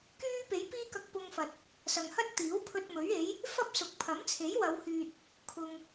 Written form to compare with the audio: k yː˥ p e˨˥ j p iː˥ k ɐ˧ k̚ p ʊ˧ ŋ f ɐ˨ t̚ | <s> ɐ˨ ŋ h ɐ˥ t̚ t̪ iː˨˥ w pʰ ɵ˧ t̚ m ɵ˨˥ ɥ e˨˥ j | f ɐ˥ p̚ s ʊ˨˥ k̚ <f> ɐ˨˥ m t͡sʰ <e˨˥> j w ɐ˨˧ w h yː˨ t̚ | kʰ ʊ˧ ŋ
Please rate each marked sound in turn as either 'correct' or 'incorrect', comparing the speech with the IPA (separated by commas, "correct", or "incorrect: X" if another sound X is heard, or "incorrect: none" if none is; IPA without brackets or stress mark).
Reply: correct, incorrect: pʰ, correct